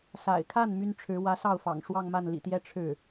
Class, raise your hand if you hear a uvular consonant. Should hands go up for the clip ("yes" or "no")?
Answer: no